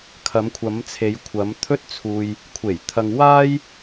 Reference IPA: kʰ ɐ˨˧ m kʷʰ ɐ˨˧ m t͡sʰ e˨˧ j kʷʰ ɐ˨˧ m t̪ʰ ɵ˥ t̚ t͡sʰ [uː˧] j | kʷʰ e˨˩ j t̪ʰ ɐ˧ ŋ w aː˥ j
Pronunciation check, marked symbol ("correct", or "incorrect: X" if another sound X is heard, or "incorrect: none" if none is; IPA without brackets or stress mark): correct